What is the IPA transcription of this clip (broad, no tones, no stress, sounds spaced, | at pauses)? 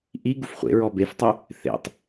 ʔ i ɡ u f χʷ ḛ ɹ ɔ b e f tˤ ʉ | θ ḛ tˤ